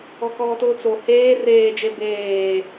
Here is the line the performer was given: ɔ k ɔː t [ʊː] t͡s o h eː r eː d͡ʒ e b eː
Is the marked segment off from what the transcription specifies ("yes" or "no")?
no